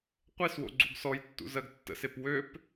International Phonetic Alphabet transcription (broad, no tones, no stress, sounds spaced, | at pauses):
qʷ e s w o̰ ɡ͡ǀ u ɡ s ɔ j tː ṵ z ɜ ɡ tː ə̰ s e p w ø p